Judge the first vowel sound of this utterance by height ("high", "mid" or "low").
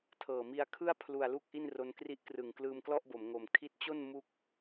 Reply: mid